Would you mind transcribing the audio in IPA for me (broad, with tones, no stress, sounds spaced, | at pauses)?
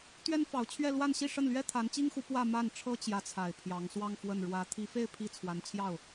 t̪ ɥ ɛ˥ n f ɑ˧˥ ʊ̯ t͡ɕʰ ɥ ɛ˥˧ l w a˥˧ n ɕ i˥˧ ʂ ə˥˩ n l ɥ ɛ˥ t̪ʰ a˧˥ n t͡ɕ i˥ ŋ x u˧˥ p w ä˥˧ m a˥˩ n ʈ͡ʂʰ ɤ˥ t͡ɕ j ä˧˥ t͡sʰ a˨˩ ɪ̯ pʰ j ɑ˧˥ ŋ s w ɑ˥˧ ŋ f w ə˥˩ n ɻ w ä˧˥ t̪ʰ i˧˥ f e˥˧ ɪ̯ pʰ i˥˩ t͡sʰ w a˧˥ n t͡ɕʰ j ɑ˥˩ ʊ̯